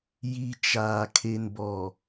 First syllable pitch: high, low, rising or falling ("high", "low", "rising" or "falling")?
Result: low